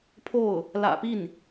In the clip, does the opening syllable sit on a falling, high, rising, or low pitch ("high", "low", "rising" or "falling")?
falling